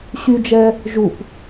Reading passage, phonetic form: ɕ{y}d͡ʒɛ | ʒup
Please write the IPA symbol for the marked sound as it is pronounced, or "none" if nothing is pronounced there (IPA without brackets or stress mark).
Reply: y